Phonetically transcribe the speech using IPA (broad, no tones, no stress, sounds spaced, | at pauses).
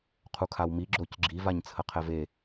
qʰ u kʰ a w m i ɡ͡ǁ o c ɡ͡ǁ i v a ɲ t͡sʰ ə qʰ ɛ v e